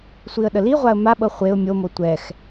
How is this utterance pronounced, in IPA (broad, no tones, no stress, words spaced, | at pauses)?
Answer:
sʷiə̯ɗəliʁʷaə̯ maɓɤ χʷeʊ̯ mʲomo tʷɛx